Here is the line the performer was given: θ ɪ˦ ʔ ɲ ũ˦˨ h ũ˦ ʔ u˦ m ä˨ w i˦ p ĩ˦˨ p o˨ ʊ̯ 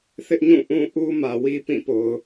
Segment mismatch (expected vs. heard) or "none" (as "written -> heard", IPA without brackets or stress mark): h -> ʔ